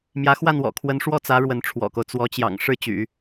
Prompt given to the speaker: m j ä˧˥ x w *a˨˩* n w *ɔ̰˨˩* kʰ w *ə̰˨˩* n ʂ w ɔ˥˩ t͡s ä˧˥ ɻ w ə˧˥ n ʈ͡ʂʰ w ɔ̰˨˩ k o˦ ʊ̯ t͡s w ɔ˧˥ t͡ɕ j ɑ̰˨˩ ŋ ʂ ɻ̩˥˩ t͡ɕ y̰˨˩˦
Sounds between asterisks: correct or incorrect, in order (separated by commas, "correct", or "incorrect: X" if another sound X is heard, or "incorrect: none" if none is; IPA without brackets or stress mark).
incorrect: a˥˩, correct, incorrect: ə˧˥